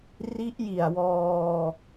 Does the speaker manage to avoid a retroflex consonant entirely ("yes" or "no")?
yes